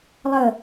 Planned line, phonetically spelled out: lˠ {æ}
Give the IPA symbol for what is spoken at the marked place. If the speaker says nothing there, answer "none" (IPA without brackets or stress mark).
ə